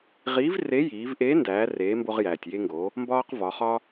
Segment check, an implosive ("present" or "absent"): absent